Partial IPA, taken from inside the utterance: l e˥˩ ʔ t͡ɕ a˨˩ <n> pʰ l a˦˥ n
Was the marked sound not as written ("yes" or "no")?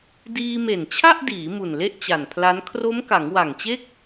no